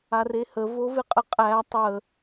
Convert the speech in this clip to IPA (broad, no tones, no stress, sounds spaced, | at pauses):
a r e h ə v o v ɪ qʼ ə qʼ æ tˤ ə